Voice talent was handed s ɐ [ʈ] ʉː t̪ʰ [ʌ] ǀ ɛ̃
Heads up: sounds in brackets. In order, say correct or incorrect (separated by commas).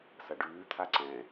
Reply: incorrect, incorrect